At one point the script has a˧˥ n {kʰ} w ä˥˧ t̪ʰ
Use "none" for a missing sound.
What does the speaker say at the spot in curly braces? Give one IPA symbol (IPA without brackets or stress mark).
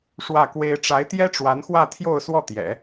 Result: x